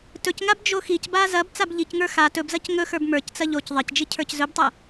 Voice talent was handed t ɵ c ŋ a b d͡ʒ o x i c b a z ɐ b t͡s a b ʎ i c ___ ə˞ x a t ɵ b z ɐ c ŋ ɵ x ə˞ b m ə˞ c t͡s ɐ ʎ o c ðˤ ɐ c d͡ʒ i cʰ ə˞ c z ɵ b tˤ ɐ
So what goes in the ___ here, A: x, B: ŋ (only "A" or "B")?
B